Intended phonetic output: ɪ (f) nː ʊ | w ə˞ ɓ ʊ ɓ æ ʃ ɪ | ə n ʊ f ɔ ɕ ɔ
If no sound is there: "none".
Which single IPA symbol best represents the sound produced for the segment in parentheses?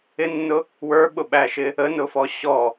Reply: none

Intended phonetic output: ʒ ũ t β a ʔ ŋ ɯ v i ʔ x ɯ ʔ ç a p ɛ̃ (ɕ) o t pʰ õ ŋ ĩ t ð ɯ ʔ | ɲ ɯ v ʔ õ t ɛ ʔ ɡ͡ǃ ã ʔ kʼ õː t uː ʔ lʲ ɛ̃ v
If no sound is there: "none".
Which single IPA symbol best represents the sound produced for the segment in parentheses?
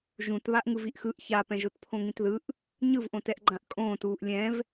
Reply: ʒ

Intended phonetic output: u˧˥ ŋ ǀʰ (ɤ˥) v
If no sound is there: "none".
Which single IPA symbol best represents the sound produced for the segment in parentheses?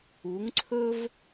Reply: ɵ˥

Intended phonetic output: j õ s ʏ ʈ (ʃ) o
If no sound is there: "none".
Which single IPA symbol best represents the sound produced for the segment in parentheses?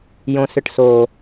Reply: s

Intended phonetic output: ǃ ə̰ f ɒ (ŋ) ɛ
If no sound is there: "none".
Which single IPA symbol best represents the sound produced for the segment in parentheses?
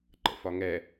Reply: ŋ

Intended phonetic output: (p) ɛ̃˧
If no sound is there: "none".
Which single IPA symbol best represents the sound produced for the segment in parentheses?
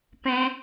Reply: p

